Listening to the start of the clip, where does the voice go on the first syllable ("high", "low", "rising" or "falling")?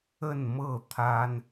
falling